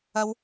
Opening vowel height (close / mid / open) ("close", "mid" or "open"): open